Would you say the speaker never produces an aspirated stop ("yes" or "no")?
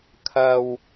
no